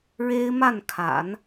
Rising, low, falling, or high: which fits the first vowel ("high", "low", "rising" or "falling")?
high